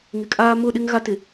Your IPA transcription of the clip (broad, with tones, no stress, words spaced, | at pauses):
ŋɪ˨kʼaː˦ mʊ˦˨ɗɪ˦ŋ ɣa˦tɪ˨